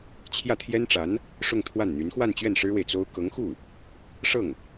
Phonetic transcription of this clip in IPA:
t͡ɕʰjä˥˩t̪ʰjɛ˥nʈ͡ʂa˧˥n | ʂʊ˥˧ŋt̪ʰwa˥˩nn̪y˧˥n xwa˥˧nt͡ɕɥɛ˥˩n ʂɻ̩˥we˨ɪ̯ t͡so˥ʊ̯ kɤ˧˥ŋxu˥˩ | ʂɤ˥˩ŋ

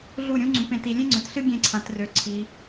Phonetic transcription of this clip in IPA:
ɮu˥˩ɾʲũ˥ ŋ͡ǀũ˨pẽ˨ ti˨lʲẽ˥ŋ͡ǀø˨tɬɨ˥ ɡʲẽ˥˩ǀʰã˨˦trø˨˦ ǀʰi˨˦

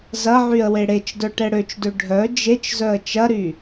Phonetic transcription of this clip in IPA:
zɐʕyə̯ weɽet͡ʃdœ ʈɛɽøt͡ʃdø ɖʱœ d͡ʒet͡ʃ zœə̯t͡ʃɐɾy

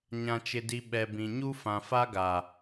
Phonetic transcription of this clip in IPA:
ɲã˨t͡ʃɪ˨di˨ ɓɛ˨bĩ˨ɲu˦ fã˨fa˦ɡa˨

